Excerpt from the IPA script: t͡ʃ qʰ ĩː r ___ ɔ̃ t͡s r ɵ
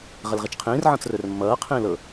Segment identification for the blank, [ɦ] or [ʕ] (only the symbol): ʕ